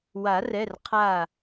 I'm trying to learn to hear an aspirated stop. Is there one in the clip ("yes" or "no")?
yes